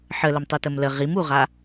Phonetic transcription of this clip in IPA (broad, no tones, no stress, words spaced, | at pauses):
ħələmtˤu təmlə ʁimuʁa